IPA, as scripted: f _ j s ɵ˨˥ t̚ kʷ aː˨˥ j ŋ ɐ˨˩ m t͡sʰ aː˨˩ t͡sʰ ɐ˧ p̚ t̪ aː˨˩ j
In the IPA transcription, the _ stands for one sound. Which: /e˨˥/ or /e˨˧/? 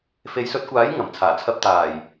e˨˧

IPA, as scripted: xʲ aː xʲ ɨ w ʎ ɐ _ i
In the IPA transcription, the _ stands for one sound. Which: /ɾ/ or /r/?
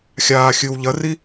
r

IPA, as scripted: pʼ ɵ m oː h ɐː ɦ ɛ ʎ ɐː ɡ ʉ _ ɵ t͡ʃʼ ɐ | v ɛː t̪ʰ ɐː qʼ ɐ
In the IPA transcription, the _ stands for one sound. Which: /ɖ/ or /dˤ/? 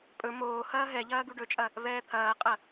ɖ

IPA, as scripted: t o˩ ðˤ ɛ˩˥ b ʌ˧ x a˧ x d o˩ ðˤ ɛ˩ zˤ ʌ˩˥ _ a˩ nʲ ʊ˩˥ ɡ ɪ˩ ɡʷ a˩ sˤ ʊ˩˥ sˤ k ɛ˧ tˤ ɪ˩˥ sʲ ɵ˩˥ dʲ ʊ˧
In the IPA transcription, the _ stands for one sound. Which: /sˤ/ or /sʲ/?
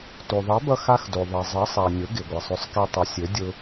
sˤ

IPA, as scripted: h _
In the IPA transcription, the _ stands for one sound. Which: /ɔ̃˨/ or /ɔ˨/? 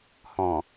ɔ̃˨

